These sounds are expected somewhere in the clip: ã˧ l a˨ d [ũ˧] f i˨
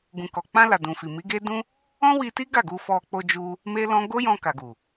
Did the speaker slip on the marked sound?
yes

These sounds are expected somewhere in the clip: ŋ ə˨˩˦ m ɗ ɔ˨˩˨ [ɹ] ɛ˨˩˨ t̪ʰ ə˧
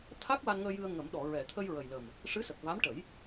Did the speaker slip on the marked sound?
no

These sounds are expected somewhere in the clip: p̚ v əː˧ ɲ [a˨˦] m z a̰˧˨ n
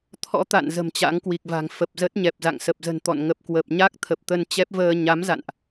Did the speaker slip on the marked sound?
no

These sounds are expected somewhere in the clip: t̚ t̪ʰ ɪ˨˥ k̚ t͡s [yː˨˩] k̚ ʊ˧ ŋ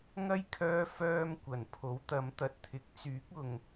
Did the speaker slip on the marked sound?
yes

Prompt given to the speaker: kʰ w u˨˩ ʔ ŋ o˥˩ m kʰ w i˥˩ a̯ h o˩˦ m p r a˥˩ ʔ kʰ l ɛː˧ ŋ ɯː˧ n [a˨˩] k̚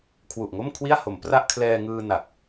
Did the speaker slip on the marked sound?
no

